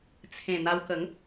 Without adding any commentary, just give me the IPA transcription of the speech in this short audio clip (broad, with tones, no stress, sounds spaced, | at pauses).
t͡sʰ ẽ˨˩ n̪ a˧ w k ə˨˦ ŋ